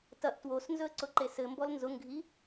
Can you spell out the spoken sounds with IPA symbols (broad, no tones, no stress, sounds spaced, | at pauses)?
t ɐ ʔ t w o s n z ɵ ə̯ ǀ ʊ ǃ e s ɘ m b ɔ l n z ʊ ŋ ɡʱ i